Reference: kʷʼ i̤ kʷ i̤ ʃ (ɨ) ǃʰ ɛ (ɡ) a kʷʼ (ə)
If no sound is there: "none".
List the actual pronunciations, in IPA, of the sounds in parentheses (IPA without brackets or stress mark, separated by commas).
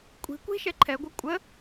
ɛ, ɡʷ, ə